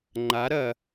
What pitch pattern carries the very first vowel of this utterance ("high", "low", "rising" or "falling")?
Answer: rising